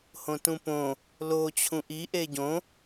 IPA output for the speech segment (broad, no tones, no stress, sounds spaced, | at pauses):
h õ t ũ p õ | l o t͡ɕʰ ũ ʔ i ʔ e ɟ õ